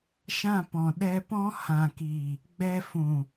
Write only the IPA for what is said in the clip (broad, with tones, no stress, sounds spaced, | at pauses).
ʃ ã˦˨ p ɔ̃˨ ɗ ɛ˧ p ɔ̃˦ h ã˨ k iː˨ | ɡ͡b ɛ˧ f ũ˨